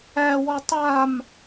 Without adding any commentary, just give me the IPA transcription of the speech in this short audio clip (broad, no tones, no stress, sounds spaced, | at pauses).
æ w ɔ tˤ a m